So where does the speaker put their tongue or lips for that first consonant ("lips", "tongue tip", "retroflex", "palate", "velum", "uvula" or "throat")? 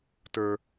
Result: tongue tip